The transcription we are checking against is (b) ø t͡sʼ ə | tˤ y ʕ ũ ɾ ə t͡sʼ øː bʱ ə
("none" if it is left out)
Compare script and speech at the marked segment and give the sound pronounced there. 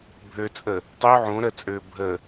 bʱ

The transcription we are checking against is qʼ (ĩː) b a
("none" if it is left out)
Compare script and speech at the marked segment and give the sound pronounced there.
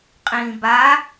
ĩː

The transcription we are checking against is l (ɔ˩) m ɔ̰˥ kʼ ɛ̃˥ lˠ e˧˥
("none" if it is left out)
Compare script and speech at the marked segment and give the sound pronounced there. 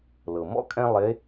ɤ˩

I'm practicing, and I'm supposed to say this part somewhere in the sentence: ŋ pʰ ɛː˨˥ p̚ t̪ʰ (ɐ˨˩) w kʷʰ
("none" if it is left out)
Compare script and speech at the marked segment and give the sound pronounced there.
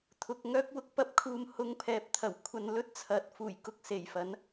ɐ˨˩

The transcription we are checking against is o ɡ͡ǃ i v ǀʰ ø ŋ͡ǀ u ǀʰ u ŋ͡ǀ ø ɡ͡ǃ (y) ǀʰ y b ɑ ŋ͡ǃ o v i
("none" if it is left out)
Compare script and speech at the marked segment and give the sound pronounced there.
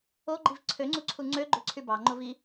ø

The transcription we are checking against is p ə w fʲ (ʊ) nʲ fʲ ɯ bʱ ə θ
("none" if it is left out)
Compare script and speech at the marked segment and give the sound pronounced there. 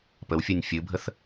ʊ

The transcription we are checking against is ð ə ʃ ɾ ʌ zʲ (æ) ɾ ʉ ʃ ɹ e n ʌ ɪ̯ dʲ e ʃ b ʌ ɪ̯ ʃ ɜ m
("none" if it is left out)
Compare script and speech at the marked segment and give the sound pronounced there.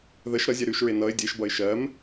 ɛ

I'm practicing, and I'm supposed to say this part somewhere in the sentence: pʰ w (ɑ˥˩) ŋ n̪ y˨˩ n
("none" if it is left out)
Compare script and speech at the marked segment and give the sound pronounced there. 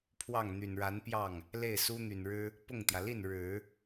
ɑ˥˩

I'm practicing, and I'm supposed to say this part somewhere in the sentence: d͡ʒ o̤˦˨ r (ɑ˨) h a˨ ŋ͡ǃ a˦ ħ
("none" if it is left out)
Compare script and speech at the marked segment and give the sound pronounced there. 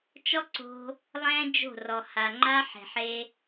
ɔ˨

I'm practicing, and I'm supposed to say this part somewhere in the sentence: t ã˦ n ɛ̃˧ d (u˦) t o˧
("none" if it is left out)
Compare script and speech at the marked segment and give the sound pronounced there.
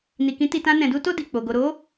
u˦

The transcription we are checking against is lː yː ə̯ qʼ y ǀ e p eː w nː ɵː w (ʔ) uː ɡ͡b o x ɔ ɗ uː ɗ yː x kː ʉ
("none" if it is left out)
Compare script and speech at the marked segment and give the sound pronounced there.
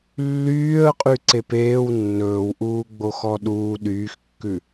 ʔ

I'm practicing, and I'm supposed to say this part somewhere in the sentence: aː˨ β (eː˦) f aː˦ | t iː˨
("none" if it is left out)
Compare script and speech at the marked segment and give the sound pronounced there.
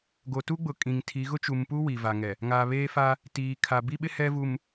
eː˦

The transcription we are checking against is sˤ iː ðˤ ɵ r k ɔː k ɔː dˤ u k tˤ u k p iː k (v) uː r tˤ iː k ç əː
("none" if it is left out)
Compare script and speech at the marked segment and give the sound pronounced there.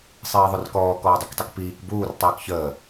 b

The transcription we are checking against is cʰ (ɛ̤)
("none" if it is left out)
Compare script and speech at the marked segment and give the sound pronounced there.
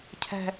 ɛ̤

